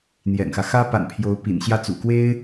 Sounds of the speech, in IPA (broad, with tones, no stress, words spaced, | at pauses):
n̪jɛ̰˨˩nxä˦ xä˥pa̰˨˩npʰjo˧˥ʊ̯ pḭ˨˩nɕjä˥˩t͡sṵ˨˩kwe˥ɪ̯